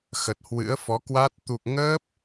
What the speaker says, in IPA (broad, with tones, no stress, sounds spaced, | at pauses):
x ə˨˩ t̚ h w ɨ̰˧˥ ə̯ f ɔ˨˦ k w a˦˥ t̚ t̪ u˨˩ k̚ ŋ əː˦˥ p̚